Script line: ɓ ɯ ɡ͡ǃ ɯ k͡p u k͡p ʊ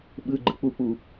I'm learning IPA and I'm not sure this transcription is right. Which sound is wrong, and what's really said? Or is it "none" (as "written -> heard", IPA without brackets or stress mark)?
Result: ʊ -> u